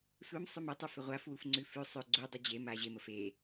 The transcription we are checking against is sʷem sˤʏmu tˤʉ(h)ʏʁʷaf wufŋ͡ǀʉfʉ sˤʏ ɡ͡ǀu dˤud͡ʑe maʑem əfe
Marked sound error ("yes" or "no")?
yes